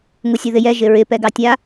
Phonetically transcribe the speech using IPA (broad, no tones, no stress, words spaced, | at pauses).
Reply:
ŋusʲoðɪjɛ ʒɪɹɪ pɛɡɑtʲa